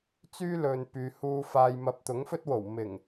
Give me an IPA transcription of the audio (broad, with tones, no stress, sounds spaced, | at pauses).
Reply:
t͡s yː˥ l ɵ˨ n p yː˨ h uː˧ f aː˨ j m ɐ˨ p̚ t̪ ʊ˨˥ ŋ f ɵ˥ t̚ w o˨˩ w m ɪ˨˩ ŋ